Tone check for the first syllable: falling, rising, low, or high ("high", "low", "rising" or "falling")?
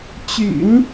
low